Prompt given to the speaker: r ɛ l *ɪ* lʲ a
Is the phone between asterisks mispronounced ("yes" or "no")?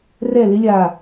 no